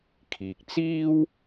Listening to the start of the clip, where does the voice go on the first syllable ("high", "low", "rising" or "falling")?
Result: low